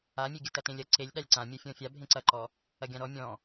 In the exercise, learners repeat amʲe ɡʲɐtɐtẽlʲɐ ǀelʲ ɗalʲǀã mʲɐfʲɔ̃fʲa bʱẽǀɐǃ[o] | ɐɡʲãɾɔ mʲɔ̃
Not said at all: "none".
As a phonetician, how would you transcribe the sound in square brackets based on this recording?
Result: ɔ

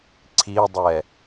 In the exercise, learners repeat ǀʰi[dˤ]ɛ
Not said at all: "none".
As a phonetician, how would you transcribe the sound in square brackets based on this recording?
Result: dˤ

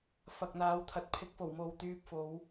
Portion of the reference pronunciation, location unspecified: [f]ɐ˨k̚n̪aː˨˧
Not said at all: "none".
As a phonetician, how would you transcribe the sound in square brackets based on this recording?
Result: f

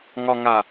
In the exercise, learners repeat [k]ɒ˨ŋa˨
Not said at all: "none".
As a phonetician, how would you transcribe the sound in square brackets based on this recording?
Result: ŋ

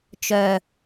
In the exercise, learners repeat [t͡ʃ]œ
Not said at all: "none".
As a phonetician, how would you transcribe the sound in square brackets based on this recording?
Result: t͡ʃ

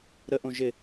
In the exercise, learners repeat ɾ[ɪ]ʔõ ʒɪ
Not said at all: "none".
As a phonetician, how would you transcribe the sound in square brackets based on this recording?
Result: ə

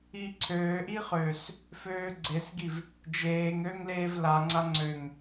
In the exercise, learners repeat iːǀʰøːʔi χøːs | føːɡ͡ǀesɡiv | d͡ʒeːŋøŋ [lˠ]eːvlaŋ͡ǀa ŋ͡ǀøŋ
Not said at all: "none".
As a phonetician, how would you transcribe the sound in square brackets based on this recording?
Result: l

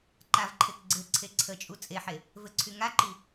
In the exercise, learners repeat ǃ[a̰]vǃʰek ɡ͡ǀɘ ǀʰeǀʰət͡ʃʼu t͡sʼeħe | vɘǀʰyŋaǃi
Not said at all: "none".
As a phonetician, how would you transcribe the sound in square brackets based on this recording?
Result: a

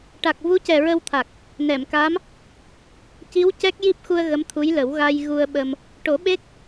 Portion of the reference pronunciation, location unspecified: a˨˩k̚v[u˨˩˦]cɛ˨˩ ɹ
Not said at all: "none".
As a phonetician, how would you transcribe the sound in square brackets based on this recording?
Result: u˧˥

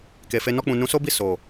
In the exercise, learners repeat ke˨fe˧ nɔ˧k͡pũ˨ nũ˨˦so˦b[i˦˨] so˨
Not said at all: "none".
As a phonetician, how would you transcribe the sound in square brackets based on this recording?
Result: i˦˨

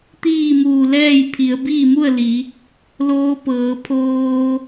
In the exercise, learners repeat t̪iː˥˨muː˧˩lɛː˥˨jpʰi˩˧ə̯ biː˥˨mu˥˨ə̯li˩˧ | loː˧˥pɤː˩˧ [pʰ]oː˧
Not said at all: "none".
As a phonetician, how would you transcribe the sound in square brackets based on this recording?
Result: pʰ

